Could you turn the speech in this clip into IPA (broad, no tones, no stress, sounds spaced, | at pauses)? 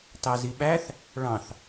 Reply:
t ɑ z i ɓ æ θ | ɭ ɑ̃ θ